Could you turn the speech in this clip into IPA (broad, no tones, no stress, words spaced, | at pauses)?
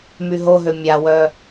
myɦoɦø mʲawœ